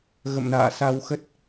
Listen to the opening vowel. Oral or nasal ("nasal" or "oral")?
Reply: oral